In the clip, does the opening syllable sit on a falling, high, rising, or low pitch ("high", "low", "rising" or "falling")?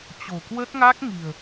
low